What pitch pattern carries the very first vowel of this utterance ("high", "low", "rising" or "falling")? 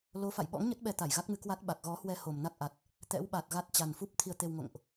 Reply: rising